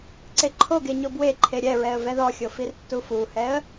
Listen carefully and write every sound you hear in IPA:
ǀ e ǃʰ o ɡ e ɲ o b w e ǃʰ e ɾʲ ɛ ɹ ɛ ə̯ v ɛ ð ɔ xʲ o f i r tː u f u h ɛ ə̯

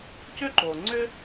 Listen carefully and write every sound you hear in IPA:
c ʏ˥ ǃ o˩ ŋ͡ǀ ʏ˥

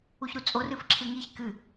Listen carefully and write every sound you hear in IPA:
u ç ɾ u t͡sʼ o r ɨ f ǁʰ ɨ ŋ i ç k ɨ

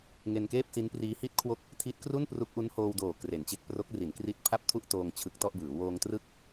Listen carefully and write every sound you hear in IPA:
ŋ e˧ n k eː˥˩ p̚ s i˦˥ n p r iː˦˥ h i˥˩ t̚ kʰ w o˥˩ k̚ | tʰ i˦˥ t̚ k r u˥˩ n p r u˦˥ k̚ ʔ u˦˥ n h oː˧ w d oː˨˩ k r e˩˦ n t͡ɕ e˦˥ k̚ p r o˦˥ k̚ r i˩˦ n k r i˦˥ t̚ pʰ a˥˩ p̚ tʰ u˥˩ ʔ t oː˧ ŋ t͡ɕʰ ɯ˦˥ k̚ t ɔ˥˩ ʔ b ɯː˩˦ w oː˧ ŋ t r ɯ˥˩ k̚

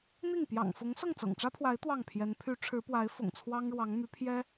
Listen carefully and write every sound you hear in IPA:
n̪ i˥˩ ŋ p j ɑ̰˨˩ ŋ f ʊ˧˥ ŋ s ɤ˥˩ ŋ t͡s ɤ̰˨˩ ŋ ʈ͡ʂ ä˥ pʰ w a˧˥ ɪ̯ t̪ w ɑ˥˩ ŋ pʰ j ɛ˧˥ n pʰ y˧˥ ʈ͡ʂʰ ɻ̩˧˥ p w a˧˥ ɪ̯ f ʊ̰˨˩ ŋ t͡sʰ w ɑ˥ ŋ ɻ w ɑ˧˥ ŋ m y˧˥ pʰ j ɛ˥

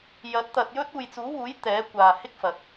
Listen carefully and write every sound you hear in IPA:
j ɐ˨˥ t̚ t̪ ɐ˧ t̚ j ɵ˥ t̚ uː˨ j t͡s uː˨˥ w uː˨˥ j t̪ ɛː˨˥ kʷ aː˨ h ɪ˥ k̚ f ɐ˨ t̚

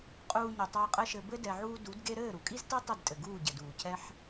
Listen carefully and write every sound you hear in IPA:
qʼ uː˧ ɲ ɘ˨ tˤ ɛ˧ ə̯ qʼ ɘ˦ ʃ ɘ˧ b ɘ˦ d ɛ˧ ʕ uː˦ d u˨˦ d ɡ e˦ ɾ ɘː˦˨ ɾ u˨ kʼ i˦ z t ɛ˦ tˤ ɘ˦˨ d tʼ ɘ˨ ɡ uː˦˨ ɟ ɘ˨ d uː˨ cʰ ɛ˦ ħ

